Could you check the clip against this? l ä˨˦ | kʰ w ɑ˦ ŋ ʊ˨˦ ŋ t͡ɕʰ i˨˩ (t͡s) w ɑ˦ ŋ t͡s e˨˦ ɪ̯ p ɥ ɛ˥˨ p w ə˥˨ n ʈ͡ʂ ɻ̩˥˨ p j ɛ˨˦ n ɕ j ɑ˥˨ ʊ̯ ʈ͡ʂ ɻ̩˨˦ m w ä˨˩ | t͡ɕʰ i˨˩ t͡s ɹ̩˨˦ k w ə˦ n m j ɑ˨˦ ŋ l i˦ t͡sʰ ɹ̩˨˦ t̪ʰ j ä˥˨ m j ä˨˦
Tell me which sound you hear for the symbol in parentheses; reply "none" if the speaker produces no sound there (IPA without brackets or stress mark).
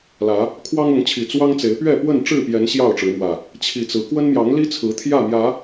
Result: t͡s